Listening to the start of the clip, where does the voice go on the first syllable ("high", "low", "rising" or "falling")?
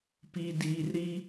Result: low